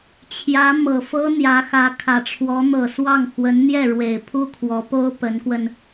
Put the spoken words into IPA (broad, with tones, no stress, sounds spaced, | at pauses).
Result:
t͡ɕʰ j ä˧˥ m ɤ˨˩ f ɤ˥ n̪ j ä˧˥ x ä˧˥ kʰ ä˨˩ ʈ͡ʂʰ w ɔ˧˥ n̪ ɤ˨˩ s w ɑ˥˩ ŋ x w ə˧˥ n n̪ j ɛ˥˩ ɻ w e˨˩ ɪ̯ pʰ u˥ kʰ w ɔ˧˥ p o˥ ʊ̯ p ə˧˥ n k w ə˧ n